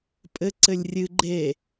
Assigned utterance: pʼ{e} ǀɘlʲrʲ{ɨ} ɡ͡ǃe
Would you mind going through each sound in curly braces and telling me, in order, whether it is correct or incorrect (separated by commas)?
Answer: incorrect, correct